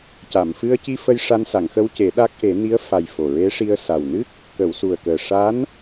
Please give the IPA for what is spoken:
c a˨˩˨ m f ɨ˧ ə̯ c i˧ f ə˧ j ʂ a˧ n s a˨˩˨ ŋ x ə˧ w c e˨˩˦ ɗ a˦˥ k̚ ʔ e˨˩˦ n i˧˥ ə̯ f a˨˩ j f o˨˩ ɹ e˧˥ ʂ i˧ ə̯ s a˨˩ w n ɨ˦˥ k̚ | k ə˨˩˨ w s u˨˩ ə̯ k əː˨˩ ʂ a˧˥ n

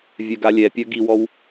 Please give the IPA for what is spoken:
vʲ œ ɡ a lʲ ɛ pʲ œ ɡ i w ɔ w

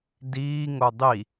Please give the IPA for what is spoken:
d iː ŋ o dˤ i

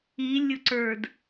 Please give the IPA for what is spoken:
i lʲ ʊ ǀ ə˞ d

